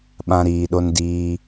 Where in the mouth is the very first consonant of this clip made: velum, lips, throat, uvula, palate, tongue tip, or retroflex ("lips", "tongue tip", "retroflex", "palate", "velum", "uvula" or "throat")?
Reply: lips